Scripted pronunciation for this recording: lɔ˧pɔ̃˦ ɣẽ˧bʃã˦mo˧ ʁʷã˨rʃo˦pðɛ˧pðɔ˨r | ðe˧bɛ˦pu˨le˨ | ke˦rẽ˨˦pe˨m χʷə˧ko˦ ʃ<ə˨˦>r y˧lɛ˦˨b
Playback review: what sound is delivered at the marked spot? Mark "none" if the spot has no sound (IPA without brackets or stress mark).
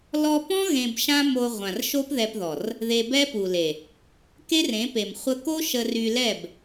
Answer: ə˧